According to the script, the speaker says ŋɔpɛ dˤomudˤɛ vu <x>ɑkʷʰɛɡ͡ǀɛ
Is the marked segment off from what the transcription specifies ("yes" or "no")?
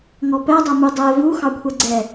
no